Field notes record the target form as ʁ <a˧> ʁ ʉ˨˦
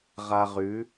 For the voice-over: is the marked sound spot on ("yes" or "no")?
yes